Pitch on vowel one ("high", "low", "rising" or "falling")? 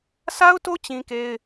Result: high